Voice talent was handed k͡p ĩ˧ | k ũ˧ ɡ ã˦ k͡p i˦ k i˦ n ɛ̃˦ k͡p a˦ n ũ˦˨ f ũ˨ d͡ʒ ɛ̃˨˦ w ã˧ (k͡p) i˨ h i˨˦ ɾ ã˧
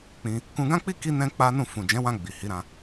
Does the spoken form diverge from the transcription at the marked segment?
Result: yes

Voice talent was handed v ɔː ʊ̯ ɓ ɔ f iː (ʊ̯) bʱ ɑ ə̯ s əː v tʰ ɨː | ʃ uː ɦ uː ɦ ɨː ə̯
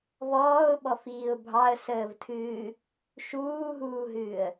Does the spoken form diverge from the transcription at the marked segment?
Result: no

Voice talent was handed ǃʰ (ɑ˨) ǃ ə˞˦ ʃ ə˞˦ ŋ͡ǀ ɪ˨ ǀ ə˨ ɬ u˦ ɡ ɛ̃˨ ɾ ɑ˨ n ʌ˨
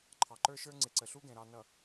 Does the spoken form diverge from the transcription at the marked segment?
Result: no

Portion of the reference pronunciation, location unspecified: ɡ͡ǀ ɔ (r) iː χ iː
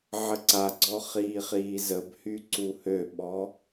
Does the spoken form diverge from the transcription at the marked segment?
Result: yes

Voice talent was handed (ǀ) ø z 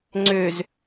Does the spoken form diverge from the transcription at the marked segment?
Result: yes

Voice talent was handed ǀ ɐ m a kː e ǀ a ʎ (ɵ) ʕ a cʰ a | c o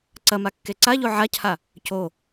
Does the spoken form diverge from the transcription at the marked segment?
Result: yes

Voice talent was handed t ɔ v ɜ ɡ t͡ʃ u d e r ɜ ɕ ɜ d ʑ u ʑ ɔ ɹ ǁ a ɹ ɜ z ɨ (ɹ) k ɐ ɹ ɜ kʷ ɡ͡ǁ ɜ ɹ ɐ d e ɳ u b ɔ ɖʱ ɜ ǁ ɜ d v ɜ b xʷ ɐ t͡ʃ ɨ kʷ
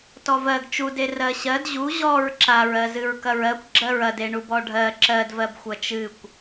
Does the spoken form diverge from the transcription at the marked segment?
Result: no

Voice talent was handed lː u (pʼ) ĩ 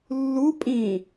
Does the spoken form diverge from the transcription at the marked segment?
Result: no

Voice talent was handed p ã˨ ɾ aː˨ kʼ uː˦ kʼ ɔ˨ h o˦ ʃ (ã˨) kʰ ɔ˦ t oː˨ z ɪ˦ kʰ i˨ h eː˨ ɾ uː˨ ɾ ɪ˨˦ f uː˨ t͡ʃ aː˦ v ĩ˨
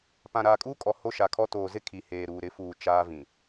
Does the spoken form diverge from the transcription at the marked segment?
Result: yes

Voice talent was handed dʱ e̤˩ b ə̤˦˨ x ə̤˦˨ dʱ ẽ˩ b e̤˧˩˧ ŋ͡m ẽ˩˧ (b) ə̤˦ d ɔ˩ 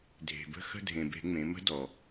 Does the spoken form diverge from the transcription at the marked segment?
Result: yes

